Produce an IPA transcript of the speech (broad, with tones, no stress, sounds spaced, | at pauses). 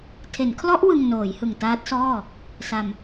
tʰ e˩˦ n kʰ l ɔ˦˥ ʔ w ɯ˧ ŋ n oː˩˦ j h ɯ˨˩ ŋ t aː˦˥ t̚ s ɔː˥˩ | s a˧ m